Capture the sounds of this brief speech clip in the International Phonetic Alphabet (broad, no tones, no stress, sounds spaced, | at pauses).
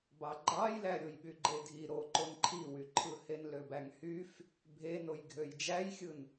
b ɑ ɡ͡ǃ ɑ j l æ ɾʲ o j ɓ y ɡ͡ǃ e dʱ i ɾ o ǃ o n ǃʰ i w y ǃʰ ɯ h e n l ø b æ ŋ h y f | bʱ e n o j ɡʱ ø j d͡ʒ æ j xʲ ɯ n